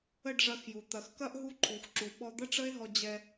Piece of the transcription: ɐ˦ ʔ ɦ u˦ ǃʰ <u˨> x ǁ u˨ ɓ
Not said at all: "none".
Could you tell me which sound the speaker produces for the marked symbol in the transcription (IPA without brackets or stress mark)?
u˨